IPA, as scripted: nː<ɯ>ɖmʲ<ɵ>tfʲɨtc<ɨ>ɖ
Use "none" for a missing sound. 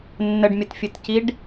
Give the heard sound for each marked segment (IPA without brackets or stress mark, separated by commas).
ə, ə, i